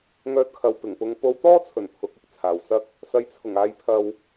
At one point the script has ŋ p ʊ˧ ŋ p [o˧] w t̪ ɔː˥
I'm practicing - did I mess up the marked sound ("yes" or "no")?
no